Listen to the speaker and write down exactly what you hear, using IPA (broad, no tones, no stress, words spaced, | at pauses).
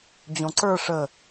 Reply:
d͡ʑõǀə˞ ʂə